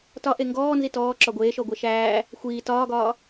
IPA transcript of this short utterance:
tɒ ʔeŋɡɔː nzitɔːǁɒ ɡʷeːʃɔ ɡʷɛʃæː | xʷiː tɒːɡɒː

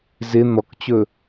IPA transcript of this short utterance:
zɪ n̪ɔkt͡ɕɵ

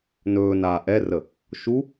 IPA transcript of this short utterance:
nɵː naːʔɛrə | ʃu

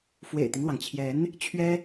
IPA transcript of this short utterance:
fwḛ˨˩ɪ̯t̪i˦ŋlwɑ˩ŋt͡ɕʰjɛ˧˥n | t͡ɕʰɥɛ˥

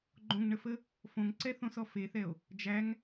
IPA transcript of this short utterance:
ɡ͡ǃõŋɳəfə | fõŋǀɛ θõsɔfeθɛo̯ | d͡ʒæŋ

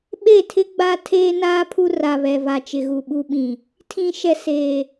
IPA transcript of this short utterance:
ɓe˦˨tʰɪ˦ ɡ͡ba˦tʰeː˦naː˦ pʰu˦ra˨βɛ˨ va˨t͡ʃɪ˨ɣu˨ ɓu˦ɓĩ˨ | tʰĩ˨ʃɛ˨ seː˨

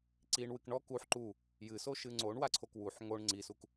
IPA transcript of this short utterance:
ǀiɳwɨk ɳɔk uħ ǃu | jɨsoʃɨ ŋ͡ǀoɳwaǀʰok wuħ ŋoɳ ŋ͡ǀisuk

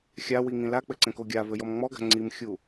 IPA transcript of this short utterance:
xʲawiŋĩ lak͡pɘǀɛ̃ko ɡʲavɘjɔm ŋ͡mɔɡa̤ ŋ͡ǀimxʲu

